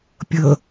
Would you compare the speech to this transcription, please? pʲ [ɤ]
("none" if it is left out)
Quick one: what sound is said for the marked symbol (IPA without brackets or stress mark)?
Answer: ɤ